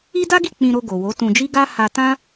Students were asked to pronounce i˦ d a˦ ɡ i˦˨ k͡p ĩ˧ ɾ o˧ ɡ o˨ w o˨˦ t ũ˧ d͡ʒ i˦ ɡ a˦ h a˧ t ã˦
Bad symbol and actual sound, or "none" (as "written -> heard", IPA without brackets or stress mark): none